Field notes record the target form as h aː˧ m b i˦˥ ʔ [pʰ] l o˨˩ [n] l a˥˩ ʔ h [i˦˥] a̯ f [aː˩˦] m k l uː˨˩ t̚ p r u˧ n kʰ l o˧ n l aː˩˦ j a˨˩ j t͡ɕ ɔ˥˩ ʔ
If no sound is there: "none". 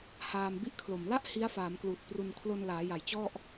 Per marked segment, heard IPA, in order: kʰ, m, i˦˥, aː˩˦

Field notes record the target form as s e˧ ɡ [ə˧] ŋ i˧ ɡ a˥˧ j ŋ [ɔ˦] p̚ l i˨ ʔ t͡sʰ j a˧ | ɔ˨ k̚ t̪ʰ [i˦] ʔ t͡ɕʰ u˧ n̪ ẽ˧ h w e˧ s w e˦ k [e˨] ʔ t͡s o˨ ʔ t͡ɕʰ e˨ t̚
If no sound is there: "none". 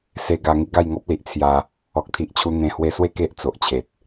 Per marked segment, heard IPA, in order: a˧, ɔ˦, i˨, e˦

